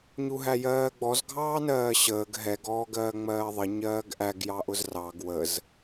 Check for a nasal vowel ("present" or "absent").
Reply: absent